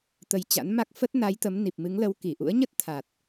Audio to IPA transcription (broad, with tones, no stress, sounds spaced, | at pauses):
t̪ ə˨˦ j t͡ɕ a̰˧˥ n m a˦˥ k̚ f ə˦˥ t̚ n a˨˦ j t̪ ə˨˦ m n i˨˩ p̚ m ɨ˨˦ ŋ l ə˨˦ w k i˧˩ ʔ ṵ˧˥ ə̯ ɲ ə˦˥ t̚ t̪ʰ a˨˩ t̚